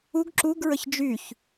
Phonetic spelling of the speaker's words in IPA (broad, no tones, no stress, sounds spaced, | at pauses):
u ɡ ǁ u ɡ ɹ ə ç d͡ʒ y ç